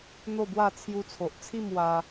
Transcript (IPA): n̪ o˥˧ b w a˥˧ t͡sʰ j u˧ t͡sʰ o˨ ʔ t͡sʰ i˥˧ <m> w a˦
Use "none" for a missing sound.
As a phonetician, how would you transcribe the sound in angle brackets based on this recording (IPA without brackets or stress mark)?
m